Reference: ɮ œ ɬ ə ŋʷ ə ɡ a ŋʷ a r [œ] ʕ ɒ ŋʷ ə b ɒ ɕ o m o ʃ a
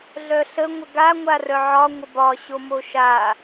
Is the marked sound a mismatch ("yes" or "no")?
no